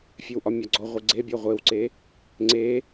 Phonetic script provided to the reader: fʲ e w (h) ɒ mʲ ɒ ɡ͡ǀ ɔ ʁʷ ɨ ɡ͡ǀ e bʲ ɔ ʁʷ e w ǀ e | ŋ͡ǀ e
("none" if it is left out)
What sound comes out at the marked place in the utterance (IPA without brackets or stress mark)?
ʔ